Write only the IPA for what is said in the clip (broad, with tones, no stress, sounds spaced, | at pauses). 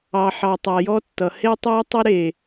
ɑ˨ ħ ɑ˨ tˤ a˨ j ɔ˦ tː ʌ˨ h e˦ tˤ ɑ˦ tˤ ə˦ ɾ e˨